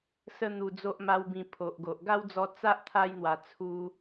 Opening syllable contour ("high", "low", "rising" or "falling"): high